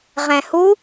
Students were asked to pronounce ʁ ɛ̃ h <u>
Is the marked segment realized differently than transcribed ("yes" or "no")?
no